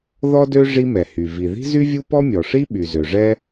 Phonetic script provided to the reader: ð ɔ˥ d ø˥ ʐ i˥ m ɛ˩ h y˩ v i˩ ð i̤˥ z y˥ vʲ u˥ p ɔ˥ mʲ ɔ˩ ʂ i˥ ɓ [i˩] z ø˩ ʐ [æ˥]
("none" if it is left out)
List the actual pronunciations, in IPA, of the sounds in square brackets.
y˩, ɛ˥

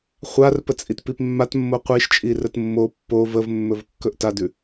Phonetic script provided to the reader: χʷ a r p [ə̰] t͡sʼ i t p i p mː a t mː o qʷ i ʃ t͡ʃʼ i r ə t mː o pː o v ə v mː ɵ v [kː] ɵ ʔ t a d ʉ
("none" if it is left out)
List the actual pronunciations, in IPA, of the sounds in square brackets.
ə, kː

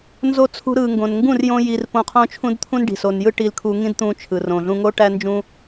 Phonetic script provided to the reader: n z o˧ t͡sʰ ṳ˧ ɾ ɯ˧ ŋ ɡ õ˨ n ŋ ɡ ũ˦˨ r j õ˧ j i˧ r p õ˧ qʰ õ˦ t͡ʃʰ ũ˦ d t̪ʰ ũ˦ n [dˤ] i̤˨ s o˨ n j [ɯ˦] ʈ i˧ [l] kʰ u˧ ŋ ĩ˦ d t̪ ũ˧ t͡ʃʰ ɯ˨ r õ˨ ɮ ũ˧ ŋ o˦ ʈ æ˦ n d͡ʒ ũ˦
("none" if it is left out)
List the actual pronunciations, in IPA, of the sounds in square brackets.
ɖ, ɯ˦, l

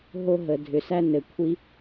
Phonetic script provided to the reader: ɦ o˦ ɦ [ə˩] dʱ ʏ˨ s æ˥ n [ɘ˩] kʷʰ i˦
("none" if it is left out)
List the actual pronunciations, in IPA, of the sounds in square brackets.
ə˩, ɘ˩

